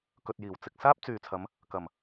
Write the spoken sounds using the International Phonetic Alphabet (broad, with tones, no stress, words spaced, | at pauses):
kɵ˨t̚jiː˨˩wt͡sɪ˨k̚saː˥p̚ t͡syː˨t͡sʰɐ˨˧m | kɐ˨˩m